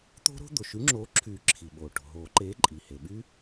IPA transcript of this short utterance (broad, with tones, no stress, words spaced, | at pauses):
t̪o̤˦˥ɾo̤˦˥ d̪o˩ʃy˨˥ŋ͡ǁoː˨˥ǁʰyː˨˩˦ ǁʰi˩ɓoː˩ ʈo̤˩ɦoː˨˩˦ǃeː˨˥ ǃʼi˩ he˩ɓy˦˥